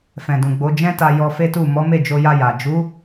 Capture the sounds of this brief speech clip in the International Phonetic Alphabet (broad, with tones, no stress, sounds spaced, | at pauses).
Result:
f ɛ̃˨ d ũ˨ ɡ͡b o˨˦ d͡ʒ ɛ̃˦ t a˧ j ɔ˧ f e˦ t u˦˨ m ɔ˨˦ m e˦˨ d͡ʒ o˧ j a˧ j a˨ d͡ʒ u˨˦